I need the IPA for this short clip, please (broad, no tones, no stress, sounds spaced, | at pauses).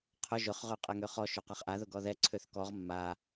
qʰ ʊ ʒ ʊ χ ʁ ø qʼ ɛ ŋ ø χ ɔ ʃ ø q a χ ʔ a ð ʊ ɡ ɔ ð ɛ ǀʰ ø θ k ɔ ʁ mː a